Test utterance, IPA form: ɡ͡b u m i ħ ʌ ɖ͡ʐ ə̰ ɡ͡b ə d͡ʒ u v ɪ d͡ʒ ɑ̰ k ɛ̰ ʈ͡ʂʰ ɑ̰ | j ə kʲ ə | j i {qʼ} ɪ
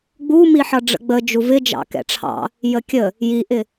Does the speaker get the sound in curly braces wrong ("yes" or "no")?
yes